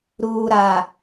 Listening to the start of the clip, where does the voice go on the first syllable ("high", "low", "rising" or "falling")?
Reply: low